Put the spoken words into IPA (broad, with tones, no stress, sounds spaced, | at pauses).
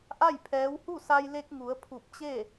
ʔ a˥˨ j pʰ ɛː˧˥ w h u˥˨ s a˧ j l e˧ k̚ ŋ u˩˧ ə̯ pʰ u˧˩ p̚ t͡ɕ e˥˨